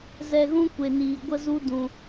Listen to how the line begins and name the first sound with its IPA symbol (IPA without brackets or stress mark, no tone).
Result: z